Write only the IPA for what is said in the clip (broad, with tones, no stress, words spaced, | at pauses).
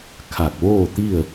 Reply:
kʰa˧˩k̚ʋoː˥˨t̪i˥˨ə̯